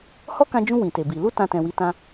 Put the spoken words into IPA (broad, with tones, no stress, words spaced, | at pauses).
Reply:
hɔ˦kã˧d͡ʒũ˧ wĩ˨te˨bi˨ lu˧ tã˧tɛ̃˨wi˨˦tã˧